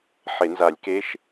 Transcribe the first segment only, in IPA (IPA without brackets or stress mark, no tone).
ħ